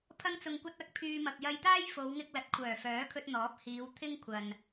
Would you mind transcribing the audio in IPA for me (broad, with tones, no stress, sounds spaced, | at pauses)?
pʰ ɐ˧ ŋ t͡s ʊ˨ ŋ kʷ ɐ˧ t̚ ɐ˨˥ k̚ pʰ yː˧ m ɐ˨ k̚ j ɐ˧ j t̪ aː˥ j f o˨˧ w ŋ ɪ˧ k̚ l ɐ˨˥ t̚ kʷʰ œː˨˩ f œː˨˥ kʰ ɵ˧ t̚ n̪ ɔː˨˥ p̚ h iː˨˧ w t̪ʰ ɪ˥ ŋ kʷʰ ɐ˨ n